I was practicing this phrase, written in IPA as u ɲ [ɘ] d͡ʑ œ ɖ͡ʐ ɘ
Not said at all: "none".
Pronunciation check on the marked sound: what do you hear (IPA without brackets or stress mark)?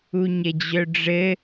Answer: ɘ